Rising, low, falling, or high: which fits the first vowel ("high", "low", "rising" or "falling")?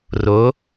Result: rising